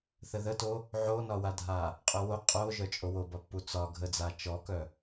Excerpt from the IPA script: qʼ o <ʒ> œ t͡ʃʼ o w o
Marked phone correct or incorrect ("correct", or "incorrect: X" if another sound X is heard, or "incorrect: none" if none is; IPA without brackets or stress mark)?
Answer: correct